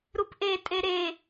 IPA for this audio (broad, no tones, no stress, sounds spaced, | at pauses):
ɾ u p ʔ e tʼ e ɾ e